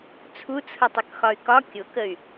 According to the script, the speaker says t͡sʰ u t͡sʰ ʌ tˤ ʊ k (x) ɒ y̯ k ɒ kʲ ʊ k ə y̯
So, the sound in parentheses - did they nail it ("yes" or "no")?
yes